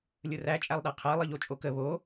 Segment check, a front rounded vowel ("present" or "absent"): absent